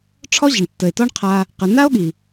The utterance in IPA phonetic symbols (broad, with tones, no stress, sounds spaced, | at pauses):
ʈ͡ʂʰ ɔ˦ ʑ ə˨ ɳ tː ə˨ e̯ t ɔ˦ ɳ qʰ a˧ | q ə˨ n a˦ o̯ ɠ i˨